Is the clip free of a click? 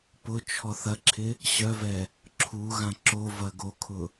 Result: no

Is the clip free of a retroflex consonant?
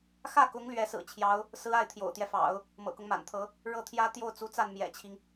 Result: no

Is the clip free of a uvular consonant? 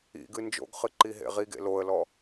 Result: no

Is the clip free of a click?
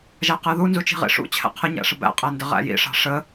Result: yes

